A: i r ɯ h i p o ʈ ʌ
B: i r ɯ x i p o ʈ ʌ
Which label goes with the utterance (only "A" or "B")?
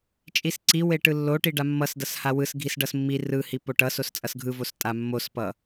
A